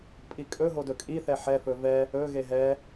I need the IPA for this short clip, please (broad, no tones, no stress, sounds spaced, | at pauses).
pʼ i kʼ ɵ ɦ o d ɵ kʼ i θ ɛ ħ ɛ f ɵ v ɛ | ɵ ɣ e ɦ ɛ